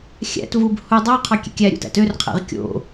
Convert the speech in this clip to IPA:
xʲ æ̰ t v u b h u dˤ o qʰ ɑ kʲ ḛ kʲ æ ɾʲ ṵ t æ̰ t ø r qʰ æ̰ ʁ kʲ o̰

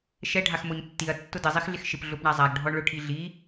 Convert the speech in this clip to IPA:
ʃ ɛ ɖʱ a x m o ɲ tː i ɐ̯ tː ʊ d ɪ zˤ i x ɮ ɪ x ʃ ɪ p ɮ ʊ p ɳ a zˤ a ɡ ɖʱ ɔ ɳ ɭ ʊ ʈʰ i ɮ i

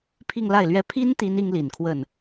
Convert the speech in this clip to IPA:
pʰ i˥˧ ŋ l a˥˩ ɪ̯ l ɥ ɛ˥ pʰ i˥ n t̪ i˥ n i˥ ŋ l i˨˩ n kʰ w ə˥˩ n

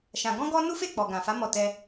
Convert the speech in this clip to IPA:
ʃ ã˧ ɡ ɔ̃˦ ɡ ɔ˦ n u˦ f e˦˨ k͡p ɔ˨ ɡ ã˨ f a˨˦ m ɔ˦˨ t ɛ˧

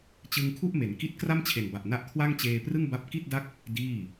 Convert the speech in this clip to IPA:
t͡ɕ ɯ˧ ŋ kʰ u˥˩ ʔ m e˩˦ n k i˦˥ t̚ k r a˥˩ m t͡ɕʰ e˨˩ n b a˨˩ ʔ n a˦˥ ʔ kʰ w a˥˩ ŋ t͡ɕ eː˧ p r ɯ˥˩ ŋ b a˦˥ p̚ k i˥˩ t̚ d a˥˩ k̚ | d iː˥˩

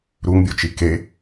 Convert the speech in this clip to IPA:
ɾ u ŋ bʲ o t͡ʃ i k e

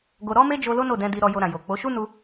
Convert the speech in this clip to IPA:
ɡ o˧ ɾ ɔ˦ m e˦ d͡ʒ o˧ l o˦ n o˦˨ d ɛ̃˧ d i˧ ɾ ɔ˧ j o˧ ɾ ã˨ j o˨ k͡p o˨˦ ʃ u˦ n u˧

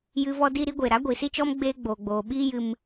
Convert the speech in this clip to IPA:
j ɨ˦ v ɔ˦ d i˦ ɾ i˨˦ ɡʷ eː˨ ɾ a˨˦ ɡʷ i˨ s i˦ t͡ʃ ɔ˦ m ɡ͡b eː˦ ɡ͡b oː˨ ɡ͡b oː˨ ɓ iː˦ j ɨ˧ m

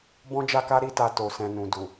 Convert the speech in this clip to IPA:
b ɔ̃˦ d͡ʒ a˦ k a˦ ɾ i˦ t a˧ t o˨ s ɛ̃˨ n ũ˨ d u˨

